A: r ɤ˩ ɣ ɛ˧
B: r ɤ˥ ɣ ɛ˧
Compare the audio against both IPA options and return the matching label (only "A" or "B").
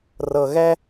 A